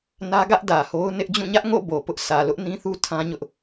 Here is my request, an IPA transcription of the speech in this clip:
n ä˦ ɡ ä˦ ʔ d ä˨ h o˦ ʊ̯ n ɪ˦ ʔ d͡ʑ ũ˦˨ ɲ ä˦ ʔ ŋ o̰˦˨ b o˨ p ʊ˦ ʔ s ä˨ l ʊ˦ ʔ n ĩ˦ θ u˦ tʰ ã˦ ɲ ʊ˦ ʔ

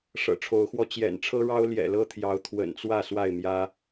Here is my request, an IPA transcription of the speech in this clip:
ʂ ɤ̰˨˩ ʈ͡ʂʰ o˨˦ ʊ̯ x w ɔ˧ t͡ɕ j ɛ̰˨˩ n ʈ͡ʂʰ ɤ˦ ɻ ɑ˦ ʊ̯ l j ɛ̰˨˩ l ɤ˦ t̪ʰ j ɑ˨˦ ʊ̯ t̪ʰ w ə̰˨˩ n t͡s w ä˥˨ s w a˥˨ ɪ̯ m j ä˦

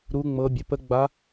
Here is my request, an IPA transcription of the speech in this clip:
ɾ u˦˥ ŋ͡m ɤ˦˥ bʲ ə˧˥˧ p ə˦˥ ɡ͡b a˦˥

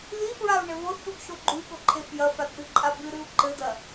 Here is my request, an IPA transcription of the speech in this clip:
ð i f ɹ a u̯ ɳ ɘ β o θ ɗ u ɡ ʃ o ɡ͡ǃ u i̯ ɠ o ǃʰ e f j ɐ f a d ɗ ɨ ǃʼ a b ɨ ɾ ɨ u̯ ǃ ɘ d ɐ

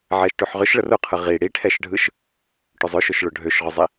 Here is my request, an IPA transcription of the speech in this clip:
ʕ ɛ ʃ ʈ ø ħ ʁ ʏ ʃ ɭ ə r ʊ qʰ ɯ ʁ i ɽ i ʈʰ ɛ ʃ ɖʱ ɯ ʃ | ʈ ʏ zˤ ʏ ʃ ʊ ʃ ɭ ʊ ɖʱ ø ʃ ʁ ʊ zˤ i

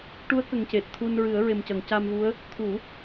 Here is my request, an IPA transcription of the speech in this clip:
ʈ u˧˥ ə̯ k ə˨˩ ŋ c e˨˩ t̚ t̪ʰ u˧ n ɹ ɨ˨˩˦ ə̯ ɹ e˨˩ m c ə˨˩˨ ŋ c a˧ m v u˧˥ ə̯ | t̪ʰ u˨˩˦

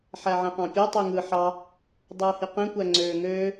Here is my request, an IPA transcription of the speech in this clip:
ħ æ ʕ ẽ q ɑ̃ pʲ o tˤ y ŋ ɯ ħ ɑ | dˤ ɯː h i q ẽ kʷ æ ŋ͡ǀ øː ŋ øː

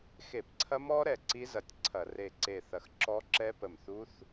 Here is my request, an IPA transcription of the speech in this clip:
x e˧˩˧ p ǀʰ ɐ˦˥ m ɔ˦˥ ɾ ɛ˧˩ ǀ i˦˥ z ɐ˧˩ tʲ ǀʰ ɐ˧˩˧ r e˧˩ ǀ e˧˩ θ ɐ˧˩ x ǁ ɔ˦˥ ǁ ɛ˦˥ p ə˧˩ m θ u˦˥ θ

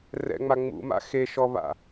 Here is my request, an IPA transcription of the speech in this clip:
r ɛ̰ ŋ͡m a ŋ͡m ṵ m a̰ x e ʃ ɔ β a̰

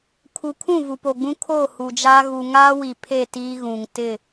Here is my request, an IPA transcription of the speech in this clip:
kʰ u˨ kʰ ũ˦˨ v u˨ p o˨ ɡ͡b ũ˦ kʰ o˦˨ h u˨ d͡ʒ aː˦ ɣ u˨ ŋ aː˦ w i˨ pʰ e˦˨ t iː˦ ɣ ũ˨ ŋ t ɪ˦˨

